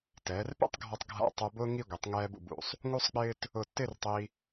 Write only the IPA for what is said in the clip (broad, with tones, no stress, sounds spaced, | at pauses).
t ɛː˩˧ r p ḛ˥ tˤ ɡʱ ɔ˧ tˤ ɡʱ a̰˧˩ tˤ ʊː˧ b ʊː˥ ŋ i˥˧ ɡʷ e˩˧ tˤ ŋ ɛː˧ b ṵ˧˩ b ṵ˩˧ sˤ | ŋ u˥ sˤ k͡p ɪː˥ t | ʊ˧˩ tː ɪː˥˧ r tˤ i˧